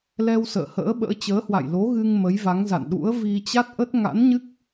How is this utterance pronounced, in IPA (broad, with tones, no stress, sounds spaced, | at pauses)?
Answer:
l ɛ˧ w s ə̰ː˧˨ h ə̰ː˧˥ ɓ ə̰ː˧˥ t͡ɕ əː˨˦ h w a̰˧˨ j l o˨˦ ɣ ɨ˧ ŋ m ə˨˦ j v a˨˦ ŋ z a̰˧˨ n ɗ ṵ˧˥ ə̯ v i˧ t͡ɕ a˦˥ t̚ ʔ ə˦˥ t̚ ŋ a̰˧˥ n ɲ ɨ˦˥ k̚